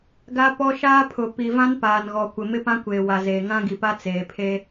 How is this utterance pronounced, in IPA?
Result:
ɡa˦ pɔ˦ ʃaː˦pʰʊ˨ pi˨vã˦n paː˨nɣɔ˨kʷɪ˨ mɪ˦pã˦kʷeː˨ wa˨zeː˨ ŋã˦ɡi˨pa˦ t͡seː˨pʰe˦

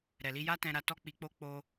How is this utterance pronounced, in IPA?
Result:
ɾɛ˨li˧ja˦ tɛ̃˧ɾa˧tɔ˦ k͡pi˧k͡po˦ k͡po˧

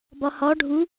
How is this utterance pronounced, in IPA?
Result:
bɒhɒ ɖʱu

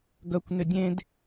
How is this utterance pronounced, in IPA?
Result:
ɡœkʷ nʏdʲẽd

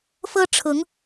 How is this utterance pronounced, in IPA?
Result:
fɤ˦ʈ͡ʂʰʊ˨˦ŋ

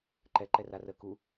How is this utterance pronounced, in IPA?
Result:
ǃɛ ǃɛrarə ku

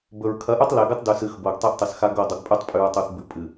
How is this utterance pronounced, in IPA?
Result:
bɵ˨ɹ kʰɐ˨˦ʔʉ˦tˤ le˨ɡɨ˦tˤ dʉ˨sɨ˨x bo˨ɡtˤe˦ʔtˤɨ˨sxa˦ ɡo˦˨dˤu˨ɡ pʼʉ˦tˤpʼʉ˨ɹtˤu˨θ bʉ˨pʼɨ˨

